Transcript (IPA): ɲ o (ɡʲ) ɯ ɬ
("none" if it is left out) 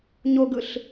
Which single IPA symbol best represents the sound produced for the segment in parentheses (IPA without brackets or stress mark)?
ɡ